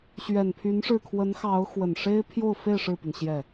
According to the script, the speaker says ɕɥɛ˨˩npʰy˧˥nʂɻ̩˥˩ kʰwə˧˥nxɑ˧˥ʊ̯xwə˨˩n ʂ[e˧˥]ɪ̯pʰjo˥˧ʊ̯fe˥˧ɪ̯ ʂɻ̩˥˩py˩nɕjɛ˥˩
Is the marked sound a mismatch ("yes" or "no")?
yes